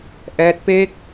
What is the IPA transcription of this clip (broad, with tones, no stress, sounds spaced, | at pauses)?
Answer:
ʔ ɛː˦˥ t̚ p e˥˩ k̚